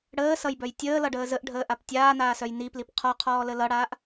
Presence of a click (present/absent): absent